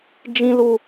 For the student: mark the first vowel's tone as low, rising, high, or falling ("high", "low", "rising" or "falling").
high